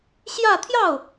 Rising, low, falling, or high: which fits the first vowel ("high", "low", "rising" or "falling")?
falling